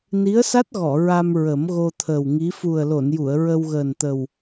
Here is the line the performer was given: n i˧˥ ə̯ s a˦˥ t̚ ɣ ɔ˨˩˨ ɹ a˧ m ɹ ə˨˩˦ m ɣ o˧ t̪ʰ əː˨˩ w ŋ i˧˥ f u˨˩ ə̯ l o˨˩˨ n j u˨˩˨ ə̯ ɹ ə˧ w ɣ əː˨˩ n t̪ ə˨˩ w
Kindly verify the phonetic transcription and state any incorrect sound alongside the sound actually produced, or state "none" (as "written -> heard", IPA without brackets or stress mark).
none